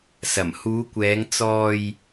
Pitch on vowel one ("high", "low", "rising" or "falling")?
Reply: low